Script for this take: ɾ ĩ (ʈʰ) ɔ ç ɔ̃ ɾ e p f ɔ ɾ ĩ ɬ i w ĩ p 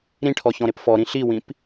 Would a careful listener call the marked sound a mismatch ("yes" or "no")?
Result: no